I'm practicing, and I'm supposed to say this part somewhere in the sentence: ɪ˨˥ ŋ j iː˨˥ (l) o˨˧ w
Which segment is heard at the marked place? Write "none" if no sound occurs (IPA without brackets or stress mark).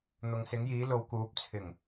l